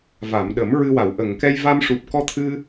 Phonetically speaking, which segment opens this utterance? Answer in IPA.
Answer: v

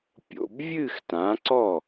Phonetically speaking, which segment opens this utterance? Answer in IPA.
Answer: pʲ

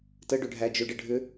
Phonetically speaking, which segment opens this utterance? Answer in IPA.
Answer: t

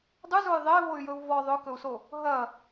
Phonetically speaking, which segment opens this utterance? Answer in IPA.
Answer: dˤ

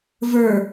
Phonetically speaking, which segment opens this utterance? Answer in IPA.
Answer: v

